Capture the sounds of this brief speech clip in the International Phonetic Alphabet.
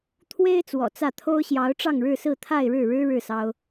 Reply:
t̪ʰ w e˥ ɪ̯ t͡s w ɔ̰˨˩ t͡s ä˥˩ t̪ʰ o˥ ʊ̯ ɕ j ɑ˧˥ ʊ̯ ʈ͡ʂ ɑ˥˧ ŋ ɻ ɻ̩˥˧ s ɹ̩˥˧ t̪ʰ a˥˧ ɪ̯ ɻ ɻ̩˥˩ ɻ ɻ̩˥ ɻ ɻ̩˥˩ s ɑ˥ ʊ̯

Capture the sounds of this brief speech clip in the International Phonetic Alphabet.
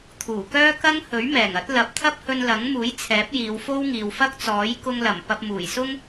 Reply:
t̪ʰ uː˨˩ k œː˥ k ɐ˥ ŋ h ɵ˨˥ ɥ m ɛː˨˩ ŋ ɐ˨˥ t̚ l ɐ˨˥ p̚ t̪ʰ ɐ˥ p̚ h ɵ˧ n l ɐ˨˥ ŋ m uː˨˥ j t͡sʰ ɛː˨˥ p̚ j iː˨˧ w f o˥ w ŋ iː˨ w f ɐ˥ k̚ t͡s ɔː˨˥ j k ʊ˧ ŋ l ɐ˨˩ m p ɐ˧ p̚ m uː˨˩ j s ʊ˥ ŋ

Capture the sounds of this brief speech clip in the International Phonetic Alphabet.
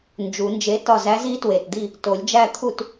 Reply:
n d͡ʒ u˨˩˦ n d͡ʒ e˧˥ t ɒ˥˨ z æ˧˥ z i˧˥ t w e˨˩ t d̪ i˥˨ | t o˨˩˦ lʲ d͡ʒ æ˥˨ t̪ʰ u˥˨ t

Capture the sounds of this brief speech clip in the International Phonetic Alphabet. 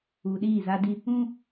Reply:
uː˨ ɗ iː˦˨ z a˦ d i˦ | ũ˦

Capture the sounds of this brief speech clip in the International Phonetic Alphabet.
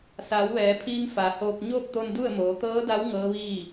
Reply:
s aː˩˧ w ʋ ɛː˩˧ pʰ iː˧ ŋ f a˩˧ h oː˧ k̚ ɲ oː˥˨ k̚ t̪ o˧ n d u˥˨ ə̯ m oː˩˧ t̪ ɤː˧˥ d a˧˥ w ŋ ɤː˧˥ ʋ iː˥˨

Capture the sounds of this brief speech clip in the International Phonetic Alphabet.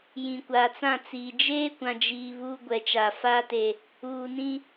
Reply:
j ĩ˨ kʷ aː˨ t͡s ã˦˨ t͡s iː˨ d͡ʒ eː˦ kʷ ã˨ d͡ʒ iː˨ β uː˦ ɡʷ ɛ˨ t͡ʃ a˨ f aː˦ t e˨ | uː˨ n ĩ˦

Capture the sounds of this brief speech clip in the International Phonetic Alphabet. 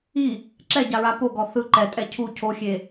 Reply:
i | ǁ ɛ ɟ a ɹ a p o ɡ ɔ θ ɯ ǃ ɛ tʼ ɛ cʰ u cʰ o xʲ e

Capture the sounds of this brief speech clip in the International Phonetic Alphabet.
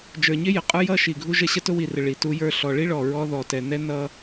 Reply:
d͡ʒ ə˞˨ ɲ ɪ˦ j ə˨ qʼ ə˞˦ j ʌ˦ ʃ i˨ ɡʱ u˦ ʒ ə˦ ɕ ə˦ t ʊ˦ w i˨ r ɪ˨ ɭ i˨ t u˦ j ə˞˦ ɬ ɔ˨ ɭ i˦ ɭ ɔ˨ ɹ ɔ˦ ð ɔ˨ t ɛ˨ n ɛ˦ n ʌ˦

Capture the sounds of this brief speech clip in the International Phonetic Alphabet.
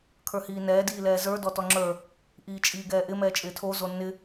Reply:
kʰ ə˞ h iː n ɛː d iː l ɛː z ə˞ d ɔ t ɔ ŋ͡ǁ ə˞ | ʔ iː t͡ʃʼ iː ɡ ɛː ʔ ɪ m ɛː t͡ʃʼ ɪː tʰ o z o nː ɪ

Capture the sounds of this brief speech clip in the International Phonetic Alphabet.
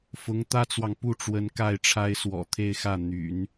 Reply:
f ʊ˧˥ ŋ t̪ ä˥ t͡s w ɑ˨ ŋ p u˥˩ ʈ͡ʂ w ə˧˥ n k a˥˩ ɪ̯ ʈ͡ʂʰ a˥ ɪ̯ s w ɔ̰˨˩ t̪ʰ e˥˧ ɪ̯ x ä˥˩ n̪ y̰˨˩˦ n

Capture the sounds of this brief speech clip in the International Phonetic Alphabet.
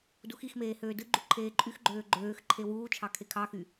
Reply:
d u x i x m eː h øː d ɯ ɡ͡ǃ u ǃʰ eː ǃʼ y x ɡ͡ǃ øː ɡ͡ǃ øː x ǃʰ e w uː t͡ʃʰ ɑ kʰ e kʰ ɑ x y

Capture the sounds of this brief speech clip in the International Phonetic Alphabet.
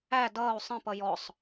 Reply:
æ d ʌː u̯ sˤ ə̃ p ʌ j ɔ sˤ

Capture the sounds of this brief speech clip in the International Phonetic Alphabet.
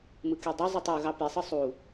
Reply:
m ɯ k y dˤ e zˤ u tˤ u ɣ ɑ p i sˤ ɯ sˤ u

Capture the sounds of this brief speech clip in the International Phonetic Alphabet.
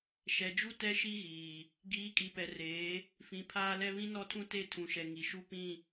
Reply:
ʃ ɛ˨ d͡ʒ u˦ t ɛ˦ ʃ i˦ ɣ iː˨ | ɡ iː˨˦ kʼ i˨ p ɛ˨ r eː˨˦ | f ĩ˨ pʰ aː˦ l ɛ˦ β ĩ˦ n ɔ˦ tʰ ũ˦ t e˦˨ tʰ ũ˨ ʃ ɛ˨ ŋ i˨ ʃ u˦ p ĩ˦˨

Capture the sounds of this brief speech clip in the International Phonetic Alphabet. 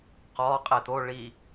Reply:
q ɔ qʼ e t̪ o ɭ i

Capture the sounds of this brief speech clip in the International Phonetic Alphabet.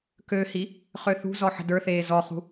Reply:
k ø h i | χ ø θ ṳ z ɔ ħ ə̤ d ə˞ θ eː z ɔ χ ṳ

